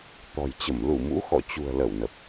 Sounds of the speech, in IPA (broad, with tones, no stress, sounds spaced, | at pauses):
t̪ ɔ̤˨˩ j t͡ɕ ə˧˩ m l u˧˩ m ṵ˧˥ x ɔ̰˧˨ t͡ɕ ṳ˨˩ ə̯ l ə˧˩ w n ə˨˩ p̚